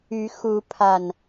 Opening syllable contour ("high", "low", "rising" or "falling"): rising